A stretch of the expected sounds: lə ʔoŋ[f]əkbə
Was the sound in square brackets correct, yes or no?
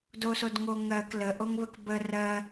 no